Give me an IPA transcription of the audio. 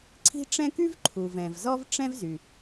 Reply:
ǀʰi̤˦ʈ͡ʂɛ̃˦ ky˦v ǃʰu˩vɛ̃˩v zɔ˦vʈ͡ʂɛ̃˦vzy˩

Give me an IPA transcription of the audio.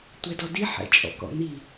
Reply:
tʷɛdɔdi ħɛ̰t͡ʃʼɔ̰kɔ̰n̪i

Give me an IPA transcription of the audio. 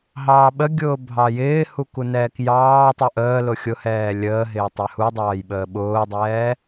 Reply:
ɦɑːɓəɡʲʊː bʱɑjɪːhu kunɛːkjɑːtˤu ʔəːlʊ xʲʊhɛː lʲəːɦɪː tˤɛhudˤɑːj ɓəːɓʊːdˤɛː

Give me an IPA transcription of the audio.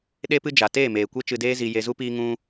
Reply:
ɗe˦pɨ˦ d͡ʒa˨ teː˦˨meː˨ kʷe˦t͡ʃɨ˧ deː˦zi˧ je˧zu˦piː˦ ŋũ˦

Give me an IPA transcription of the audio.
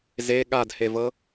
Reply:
ze ɠadhevɤ

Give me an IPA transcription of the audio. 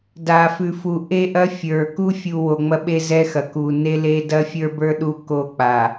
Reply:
da˨fʉ˨fu˨ ʔe˦ʔɐ˦fʲə˞˨ ku˦ fʲu˨ wo˨ŋ͡mɐ˦ɓe˦ zɛ˦xɐ˨ ku˨ ne˦le˦ dɐ˦fʲə˞˦bə˞˦ ɗu˦ko˦˨k͡pa˨

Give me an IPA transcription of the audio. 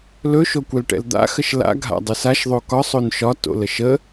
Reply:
lɵ ʃokʷɛlʈɛ̰ld̪a̰ xəʃla̰ ɡʱa̰dˤɘsaʃ ðˤokɒ sˤonʃɒ to̰ləʃə

